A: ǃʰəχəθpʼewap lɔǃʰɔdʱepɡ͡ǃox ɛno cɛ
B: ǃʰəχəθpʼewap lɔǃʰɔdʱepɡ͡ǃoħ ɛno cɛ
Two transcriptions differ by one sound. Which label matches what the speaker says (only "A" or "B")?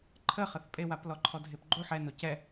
B